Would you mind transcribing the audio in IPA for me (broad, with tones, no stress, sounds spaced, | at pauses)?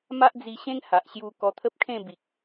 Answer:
m a˦ ʔ d͡z i˧ ɕ ẽ˦ ŋ h a˨ ʔ ɕ j u˧ k ɔ˧ t̪ʰ ə˦ p̚ kʰ ẽ˥˧ b i˨ k̚